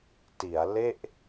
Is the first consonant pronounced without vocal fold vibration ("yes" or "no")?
yes